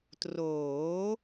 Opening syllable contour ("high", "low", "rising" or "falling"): rising